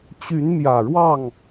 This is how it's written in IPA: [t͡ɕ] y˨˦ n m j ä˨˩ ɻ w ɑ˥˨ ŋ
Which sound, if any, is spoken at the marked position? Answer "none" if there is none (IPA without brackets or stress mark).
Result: t͡ɕ